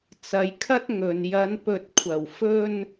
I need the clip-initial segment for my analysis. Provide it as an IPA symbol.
t͡s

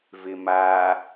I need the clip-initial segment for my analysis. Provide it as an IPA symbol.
v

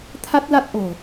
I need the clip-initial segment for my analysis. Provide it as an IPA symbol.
t̪ʰ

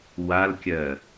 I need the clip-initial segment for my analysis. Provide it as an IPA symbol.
w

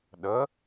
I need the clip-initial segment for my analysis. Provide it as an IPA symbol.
ɗ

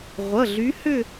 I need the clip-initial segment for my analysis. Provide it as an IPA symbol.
ʁʷ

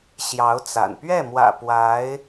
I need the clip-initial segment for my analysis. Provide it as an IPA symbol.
ɕ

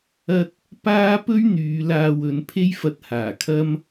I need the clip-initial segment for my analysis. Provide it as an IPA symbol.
ɐ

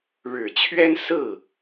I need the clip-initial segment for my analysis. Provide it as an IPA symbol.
ɻ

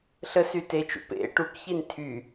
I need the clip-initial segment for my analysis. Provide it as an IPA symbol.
ɬ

